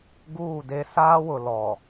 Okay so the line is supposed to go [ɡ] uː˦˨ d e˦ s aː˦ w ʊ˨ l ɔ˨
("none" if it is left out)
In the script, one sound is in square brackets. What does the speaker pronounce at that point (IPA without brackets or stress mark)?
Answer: ɡ